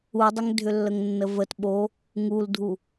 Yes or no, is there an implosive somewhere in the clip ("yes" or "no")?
yes